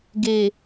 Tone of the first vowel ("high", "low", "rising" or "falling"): low